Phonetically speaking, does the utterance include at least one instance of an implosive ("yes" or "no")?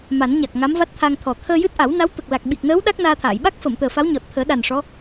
yes